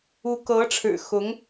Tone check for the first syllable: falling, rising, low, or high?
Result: rising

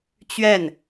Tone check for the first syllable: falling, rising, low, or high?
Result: falling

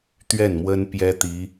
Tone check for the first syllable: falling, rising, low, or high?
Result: falling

